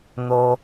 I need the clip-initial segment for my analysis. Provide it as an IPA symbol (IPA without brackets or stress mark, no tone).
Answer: n̪